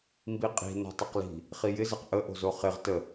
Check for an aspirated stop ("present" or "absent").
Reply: absent